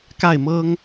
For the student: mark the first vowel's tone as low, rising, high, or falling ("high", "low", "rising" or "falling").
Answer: falling